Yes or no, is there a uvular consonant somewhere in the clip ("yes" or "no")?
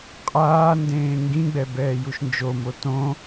yes